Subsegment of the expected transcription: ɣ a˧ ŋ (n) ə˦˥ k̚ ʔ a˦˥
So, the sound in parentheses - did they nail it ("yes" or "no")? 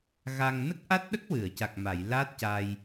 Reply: yes